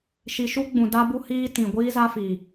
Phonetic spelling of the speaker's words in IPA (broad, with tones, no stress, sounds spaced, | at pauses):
ʃ i˨ ʃ u˦ ɡ͡b ũ˨ d a˦ b u˦ h iː˦ t ĩ˨ ɡʷ iː˦ z a˦ f iː˨